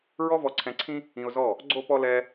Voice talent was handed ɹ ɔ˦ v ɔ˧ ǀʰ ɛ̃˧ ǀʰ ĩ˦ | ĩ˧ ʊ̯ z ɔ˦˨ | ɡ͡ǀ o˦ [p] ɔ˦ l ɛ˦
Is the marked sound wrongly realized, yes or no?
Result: no